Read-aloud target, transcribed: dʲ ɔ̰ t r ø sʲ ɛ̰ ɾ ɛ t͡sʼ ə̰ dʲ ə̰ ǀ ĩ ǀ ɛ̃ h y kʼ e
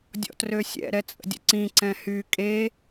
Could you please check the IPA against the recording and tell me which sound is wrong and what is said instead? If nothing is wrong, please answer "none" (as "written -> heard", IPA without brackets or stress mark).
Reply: none